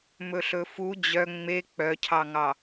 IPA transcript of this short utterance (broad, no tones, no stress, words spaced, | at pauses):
mɵɬɵfu d͡ʑœ ŋ͡me k͡pœcʰɑŋɑ